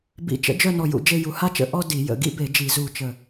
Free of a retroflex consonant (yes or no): yes